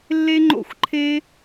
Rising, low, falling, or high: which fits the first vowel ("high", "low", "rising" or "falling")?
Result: high